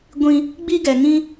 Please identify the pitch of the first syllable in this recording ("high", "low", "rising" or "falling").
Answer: high